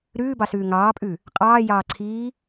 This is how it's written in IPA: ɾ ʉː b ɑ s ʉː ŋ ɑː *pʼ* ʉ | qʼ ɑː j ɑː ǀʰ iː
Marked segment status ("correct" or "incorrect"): correct